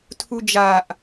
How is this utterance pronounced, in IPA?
tʰud͡ʒaʔ

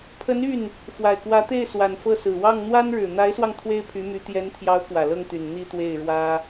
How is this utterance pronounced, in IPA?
pʰə˧˥ny˥˩n | fwa˨˩ɪ̯kwä˧˥t̪e˥˩ɪ̯ swa˨˩nfɤ˥˩sɹ̩˨˩ wɑ˥˩ŋ n̪wa˥nɻɻ̩˨˩ n̪a˧˥ɪ̯swɑ˧ŋ t̪ʰwe˥ɪ̯pʰy˧˥my˧˥ t̪jɛ˧˥nt̪ʰjɑ˧˥ʊ̯ kwä˨˩lɤ˥˩ŋt̪y˨˩n n̪i˥˧t̪we˥˩ɪ̯ɻwä˥

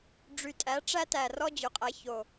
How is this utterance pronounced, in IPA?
ɖ͡ʐy˨˩tʼæ˩˥ ʈ͡ʂæ˥tæ˨˩rɔ˥ d͡ʑø˩˥qʼæ˩˥ço˨˩

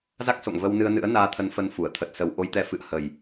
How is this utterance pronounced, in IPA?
za˦˥k̚so̰˧˨ŋ və˧wnɨ˧ə̯ nɨ̰˧˥ə̯naː˧t̪ʰə˧n fə˨˦n fu˧˩ə̯ t̪ʰə˨˩t̚sə˨˩wʔo˧jt̪ɛ˨˦ fɨ̰˧˨ə̯hə˨˩j

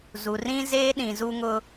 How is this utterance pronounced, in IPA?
zu˨rĩ˦ zeː˦ɗĩ˨zu˦ŋʊ˦

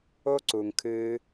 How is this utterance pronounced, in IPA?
o˦ǀu˨ŋkʰɨː˧

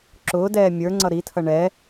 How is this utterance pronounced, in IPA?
ǁʊːdɛː mʲə˞ ŋ͡ǀʌɾitʰʌ ɳɛ

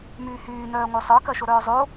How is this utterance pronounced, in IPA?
myːhyːnœː ŋʷœsˤə˞kɐʃo ɾœːzˤo

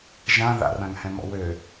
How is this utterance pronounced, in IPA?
ʒã ða̰rãŋhɛ̃mɔ̰ wø

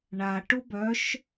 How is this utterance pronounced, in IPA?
ɳaʈʊ bœʃ

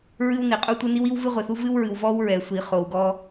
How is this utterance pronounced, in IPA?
ɹɨ˥wni˨qʼu˥tʷɨ˥ ni˥wi˥w vɨ˥ʁʷe˨θu˥ vɨ˥wɹɨ˨w vɔ˥wɹɛ˨sʷi˨ χo˨wɡɔ˥

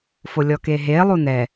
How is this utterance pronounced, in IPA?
folʲɔkeɦe lˠunɛ

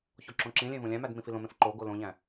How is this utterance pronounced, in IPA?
çoǁõǁĩlʲẽ võlʲæ̃mæd mĩfilõmẽf ǃoɡo lõʎæ̃

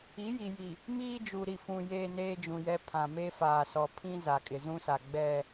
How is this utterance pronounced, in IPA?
i˨˦ji˨ji˨ | miː˦d͡ʒu˨ɾi˨fũ˨ jeː˦neː˦d͡ʒũ˨jɛ˦ pʰã˨me˦ faː˨sɔ˨ pʰĩ˦ za˨kʼɪ˨zũ˦sa˨ ɡ͡bɛ˦˨

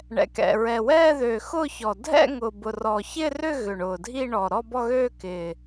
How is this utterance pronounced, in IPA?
ɳɛ̰˨˩kɛ̰˨˩ ɹɛ˨˩ wɛː˥˧ðø˨˩xʊː˥˧çɔ˨˩ dʱɛ̰˥˧ ŋʊː˨˩bʊ˨˩rɔː˨˩ çɪː˥˧rʏ˥˧ ɣʏ˨˩ɳʊː˨˩ dʱi˥˧ɳɔ˨˩ ɾɔ˥˧bɔ˥˧ɣøː˥˧ kɪː˨˩

